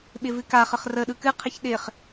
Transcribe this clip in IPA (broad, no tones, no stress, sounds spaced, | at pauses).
ɓ ɪ v ɨ k a χ ə χ r ə ɗ ɯ k ɨ qʰ ɪ ç ɗ ɪ χ